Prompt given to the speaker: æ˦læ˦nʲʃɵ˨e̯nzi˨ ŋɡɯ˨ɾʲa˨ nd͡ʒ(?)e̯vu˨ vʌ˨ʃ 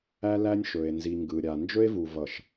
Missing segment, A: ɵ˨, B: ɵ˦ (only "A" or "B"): B